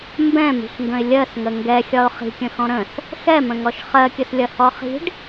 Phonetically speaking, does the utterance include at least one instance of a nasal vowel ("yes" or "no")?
yes